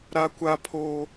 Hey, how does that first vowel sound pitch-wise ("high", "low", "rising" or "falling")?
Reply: high